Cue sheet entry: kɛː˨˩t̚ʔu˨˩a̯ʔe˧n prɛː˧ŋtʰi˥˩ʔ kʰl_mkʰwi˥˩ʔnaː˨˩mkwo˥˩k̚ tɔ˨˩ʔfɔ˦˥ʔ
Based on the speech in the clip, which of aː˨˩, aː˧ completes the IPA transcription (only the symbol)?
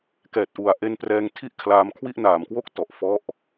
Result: aː˧